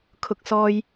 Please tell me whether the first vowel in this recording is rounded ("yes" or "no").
yes